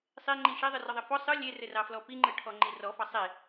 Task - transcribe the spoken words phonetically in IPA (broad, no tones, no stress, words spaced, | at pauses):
sˤeŋ͡ǃi ʃɛðˤɯrɔðˤɘ fɔ sˤɯ lʲerɘrɑflɔ piŋ͡ǃɯʈʰɔŋ͡ǃi rɔfɑ sˤe